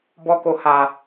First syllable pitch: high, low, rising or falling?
high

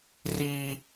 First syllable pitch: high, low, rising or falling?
high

